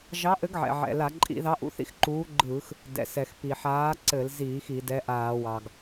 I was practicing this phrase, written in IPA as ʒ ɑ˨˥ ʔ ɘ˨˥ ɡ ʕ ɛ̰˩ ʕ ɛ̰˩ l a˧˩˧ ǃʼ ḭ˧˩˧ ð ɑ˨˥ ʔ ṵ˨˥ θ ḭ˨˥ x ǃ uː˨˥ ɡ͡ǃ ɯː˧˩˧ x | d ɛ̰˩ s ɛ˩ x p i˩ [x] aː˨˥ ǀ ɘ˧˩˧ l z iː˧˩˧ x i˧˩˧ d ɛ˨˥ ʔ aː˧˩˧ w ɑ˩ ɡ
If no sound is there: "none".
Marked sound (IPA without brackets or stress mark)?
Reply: ħ